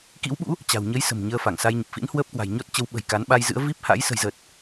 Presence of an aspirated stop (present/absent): absent